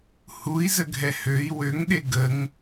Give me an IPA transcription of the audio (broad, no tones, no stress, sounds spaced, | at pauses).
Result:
h u i̯ z ə ɡʱ ɛ h ø i̯ w ø ŋ ɗ e ɡ ə ŋ